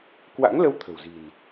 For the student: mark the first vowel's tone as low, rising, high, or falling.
rising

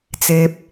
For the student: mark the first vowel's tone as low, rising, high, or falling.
low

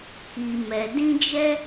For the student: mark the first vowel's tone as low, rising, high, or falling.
low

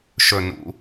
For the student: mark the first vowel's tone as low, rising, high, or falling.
falling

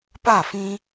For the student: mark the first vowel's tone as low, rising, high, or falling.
falling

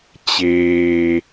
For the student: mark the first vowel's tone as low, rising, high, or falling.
low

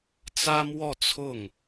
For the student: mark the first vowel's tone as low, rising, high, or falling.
high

